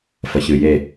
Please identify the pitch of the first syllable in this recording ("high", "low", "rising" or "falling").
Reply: low